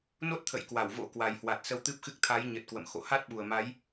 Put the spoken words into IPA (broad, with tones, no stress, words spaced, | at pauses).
no˦˥t̚t̪ʰə̰˧˨jkwa˧˩w vo̰˧˥kwa˨˩jhwa˨˩t̚ sə˧wt̪ɨ˦˥p̚xɨ˦˥k̚ t̪ʰa˨˦jɲə˨˩t̚ kwə̰˧˨mxo̰˧˨ ha˦˥t̚ɓu˨˩ə̯ma˨˦j